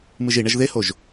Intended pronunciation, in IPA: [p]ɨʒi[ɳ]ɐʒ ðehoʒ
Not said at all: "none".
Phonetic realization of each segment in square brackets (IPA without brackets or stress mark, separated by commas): m, ɳ